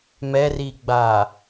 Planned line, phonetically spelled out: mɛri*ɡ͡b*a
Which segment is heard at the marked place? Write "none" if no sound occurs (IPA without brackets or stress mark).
ɡ͡b